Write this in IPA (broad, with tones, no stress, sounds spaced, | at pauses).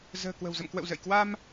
z ə̤ː˨˩ k w ə̤˨˩ w z ə̰˧˨ m k w ə̰˧˨ w z ə̰˧˨ j k w a˧ m